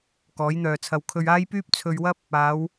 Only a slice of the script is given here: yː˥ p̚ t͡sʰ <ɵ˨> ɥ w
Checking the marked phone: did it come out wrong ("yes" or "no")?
yes